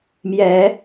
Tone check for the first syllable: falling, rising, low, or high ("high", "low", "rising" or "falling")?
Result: rising